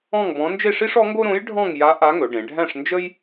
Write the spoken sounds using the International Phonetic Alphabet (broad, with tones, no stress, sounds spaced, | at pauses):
ɔ̃˥˧ ŋ b ɔ̃˧˥ n d͡ʒ e˥˧ ʂ i˥ ʂ ɔ˧˥ ŋ ɡ o˥ ɾ õ˧˥ j ɖʱ ɔ̃˥˧ ŋ j a˧˥ ʔ a˧˥ ŋ ɵ˩˧ ɖ ẽ˩˧ ɖʱ æ̃˥˧ ʂ n d͡ʒ ə˥ j